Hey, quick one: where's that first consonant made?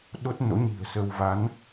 tongue tip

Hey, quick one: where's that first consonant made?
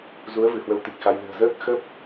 tongue tip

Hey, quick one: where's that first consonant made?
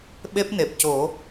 lips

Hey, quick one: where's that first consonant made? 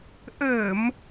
throat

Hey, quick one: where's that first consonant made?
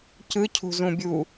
palate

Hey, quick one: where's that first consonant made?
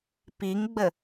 lips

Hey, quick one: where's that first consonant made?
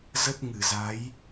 tongue tip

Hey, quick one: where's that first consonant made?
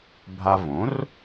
lips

